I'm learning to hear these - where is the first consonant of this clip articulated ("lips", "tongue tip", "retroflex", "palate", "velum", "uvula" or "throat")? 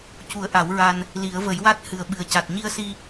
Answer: palate